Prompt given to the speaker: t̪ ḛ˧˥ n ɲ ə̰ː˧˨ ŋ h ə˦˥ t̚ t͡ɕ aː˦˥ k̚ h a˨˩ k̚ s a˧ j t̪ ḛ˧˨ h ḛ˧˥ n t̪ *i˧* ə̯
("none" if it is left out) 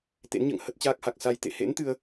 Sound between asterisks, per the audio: ɨ˧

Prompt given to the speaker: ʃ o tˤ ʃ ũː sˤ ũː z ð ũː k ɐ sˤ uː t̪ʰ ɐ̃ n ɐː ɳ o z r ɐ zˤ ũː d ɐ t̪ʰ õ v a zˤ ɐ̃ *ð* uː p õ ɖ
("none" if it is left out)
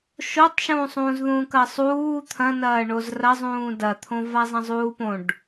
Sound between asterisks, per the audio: zˤ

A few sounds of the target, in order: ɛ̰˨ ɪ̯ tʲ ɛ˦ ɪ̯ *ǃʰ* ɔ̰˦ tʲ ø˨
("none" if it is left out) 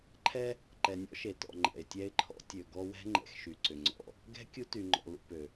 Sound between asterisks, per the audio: ǃʰ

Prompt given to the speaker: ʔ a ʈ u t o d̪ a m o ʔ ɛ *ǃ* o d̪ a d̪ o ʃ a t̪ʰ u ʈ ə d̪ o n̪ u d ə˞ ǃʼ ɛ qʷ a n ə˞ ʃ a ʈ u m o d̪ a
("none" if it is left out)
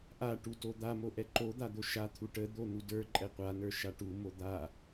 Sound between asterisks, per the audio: ǃ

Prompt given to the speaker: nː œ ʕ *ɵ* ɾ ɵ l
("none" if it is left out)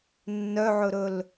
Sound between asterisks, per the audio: ɵ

